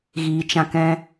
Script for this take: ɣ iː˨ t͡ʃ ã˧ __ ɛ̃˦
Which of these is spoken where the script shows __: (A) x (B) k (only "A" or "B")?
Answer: B